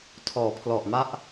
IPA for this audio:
tʰ ɔː˩˦ pʰ l ɔ˨˩ ʔ m a˦˥ ʔ

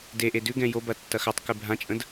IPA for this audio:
d e ʔ e d ʉ ɡ ɛ̃ j o b ɐ tː ɐ x a tˤ k ʉ bʱ ã t͡ʃʼ ə̃ d

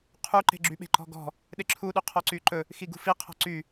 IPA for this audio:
qʰ u ǃ e̤ ɡ͡ǁ y ɓ e̤ ǃ ɔ̤ ɡ ɔ̤ | ɗ e ǁʰ u ɗ y qʰ ɔ ǀ y ǃ ɵ | x i ɡ ṳ f i qʰ ɔ̤ ǀ y

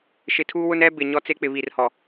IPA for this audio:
ʃ ɪ˨ tʰ uː˦ w ʊ˦ n ɛ˦ b ɪ˨ ɲ ɔ˦ t͡s e˦ k͡p ɪ˨ β i˨ r h ɔ˨

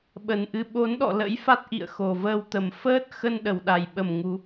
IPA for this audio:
ɓ ə˨˩ n ʔ ɨ˨˦ ɓ o˨˦ n ɗ ɔ̰˧˨ l ə̰˧˥ j f a˦˥ t̚ ʔ ḭ˧˨ ə̯ x o˨˩ v əː˧ w t̪ ə˨˩ m f əː˦˥ t̚ x ə˧ n ɗ ə˨˩ w ɗ a˨˩ j ɓ ə˨˩ m ŋ u˨˦

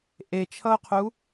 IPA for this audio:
ʔ e t͡ʃʰ ʌ ʊ̯ qʰ u

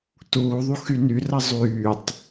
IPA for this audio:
t uː ðˤ u x y n y r ɐ zˤ yː tˤ

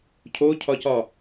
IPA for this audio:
cʰ o cʰ ɒ c ɒ

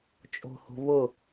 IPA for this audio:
t͡ʃʼ o̤ h o̤ β ʊ

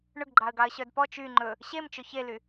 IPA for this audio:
ɳ ɵ ɡ ɡ͡ǃ ɑ ə̯ ɡ ɑ ə̯ ɕ œ d p ɔ t͡ʃ y ŋ͡ǃ ɵ | ɕ e m t͡ʃ ɵ ç e l y

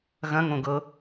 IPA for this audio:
ɣ ɐ̃ ŋ õ ɡ ɤ

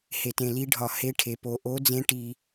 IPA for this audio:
h e˨ t ẽ˨ l i˧˥ ɖʱ ɒ˨ h e˧˥ ʈʰ e˨ p o˨ ʔ o˧˥ d͡z ẽ˧˥ ʈ i˨

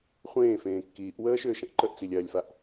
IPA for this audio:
χʷ ẽː f ẽː kː iː ʔ w əː ʃ ʏː ʃ ə̃ ʔ ǃ ə ʔ t͡s i lʲ ɜ lʲ f a ʔ

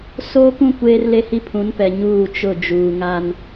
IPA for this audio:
s oː˦ k ũ˦ kʷ eː˦ r l e˦ h i˦ pʰ ũ˨˦ n p ɛ˨ ɲ uː˦˨ t͡ʃ ʊ˦˨ d͡ʒ uː˨ ŋ a˦ n

